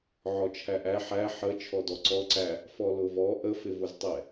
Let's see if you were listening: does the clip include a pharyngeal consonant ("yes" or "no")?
yes